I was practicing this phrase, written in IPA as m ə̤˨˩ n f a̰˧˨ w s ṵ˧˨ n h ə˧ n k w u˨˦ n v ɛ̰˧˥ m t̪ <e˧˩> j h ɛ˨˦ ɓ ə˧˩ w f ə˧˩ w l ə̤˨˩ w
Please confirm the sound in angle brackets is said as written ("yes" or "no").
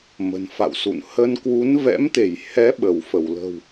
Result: yes